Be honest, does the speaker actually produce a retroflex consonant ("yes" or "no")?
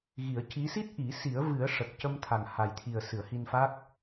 yes